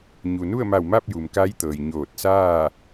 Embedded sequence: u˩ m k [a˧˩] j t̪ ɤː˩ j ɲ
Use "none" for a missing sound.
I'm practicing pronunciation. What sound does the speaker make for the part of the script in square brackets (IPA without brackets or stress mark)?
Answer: a˧˥